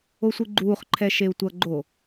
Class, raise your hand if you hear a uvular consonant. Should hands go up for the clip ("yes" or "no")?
yes